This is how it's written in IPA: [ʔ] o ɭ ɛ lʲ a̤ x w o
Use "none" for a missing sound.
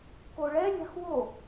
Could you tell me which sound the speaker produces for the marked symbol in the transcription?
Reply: k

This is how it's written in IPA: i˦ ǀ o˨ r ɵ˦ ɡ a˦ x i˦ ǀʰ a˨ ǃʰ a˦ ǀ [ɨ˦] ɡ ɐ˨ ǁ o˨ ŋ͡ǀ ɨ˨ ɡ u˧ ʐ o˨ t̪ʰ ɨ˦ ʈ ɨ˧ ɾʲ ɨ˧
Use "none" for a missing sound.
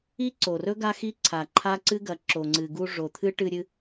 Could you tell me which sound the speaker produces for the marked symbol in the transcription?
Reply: ɨ˦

